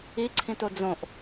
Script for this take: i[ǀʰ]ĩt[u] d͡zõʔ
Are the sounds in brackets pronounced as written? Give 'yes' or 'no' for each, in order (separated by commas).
yes, no